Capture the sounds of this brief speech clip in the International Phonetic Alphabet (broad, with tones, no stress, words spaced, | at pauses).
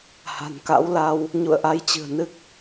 ha̤˨˩nka̰˧˥wla˧w | ɲṵ˧˨ə̯ʔa˧jt͡ɕɨ̤˨˩ə̯ nɨ˦˥k̚